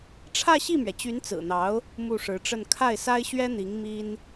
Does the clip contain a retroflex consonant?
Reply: yes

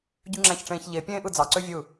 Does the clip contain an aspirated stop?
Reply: no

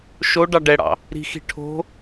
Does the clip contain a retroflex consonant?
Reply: yes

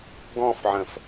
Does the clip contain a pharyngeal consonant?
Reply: yes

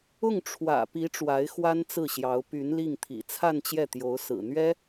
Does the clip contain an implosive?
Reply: no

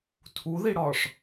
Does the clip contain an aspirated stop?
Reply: yes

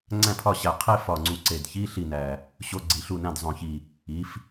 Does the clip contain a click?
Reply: yes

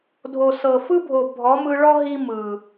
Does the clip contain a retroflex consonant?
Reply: yes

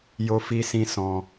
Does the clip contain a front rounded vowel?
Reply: no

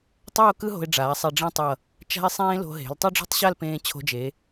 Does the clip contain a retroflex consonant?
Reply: yes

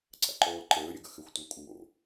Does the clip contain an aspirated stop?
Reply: no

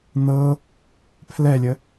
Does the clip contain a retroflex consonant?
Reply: no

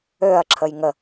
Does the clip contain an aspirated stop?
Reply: yes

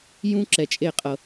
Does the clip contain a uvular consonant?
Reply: yes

